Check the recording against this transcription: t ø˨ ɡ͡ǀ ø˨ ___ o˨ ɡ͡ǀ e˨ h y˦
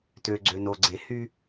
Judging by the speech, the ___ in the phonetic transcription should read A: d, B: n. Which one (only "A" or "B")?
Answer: B